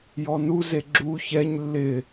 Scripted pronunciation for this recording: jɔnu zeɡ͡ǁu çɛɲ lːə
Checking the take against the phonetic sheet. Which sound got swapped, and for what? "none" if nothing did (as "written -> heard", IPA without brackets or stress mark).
ə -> ɪ